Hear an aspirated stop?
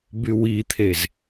yes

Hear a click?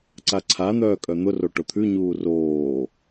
yes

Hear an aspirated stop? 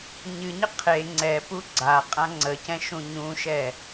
yes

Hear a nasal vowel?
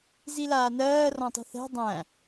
yes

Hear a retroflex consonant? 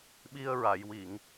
no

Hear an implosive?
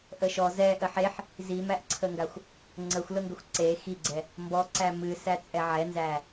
no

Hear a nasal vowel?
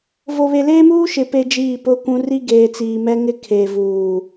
yes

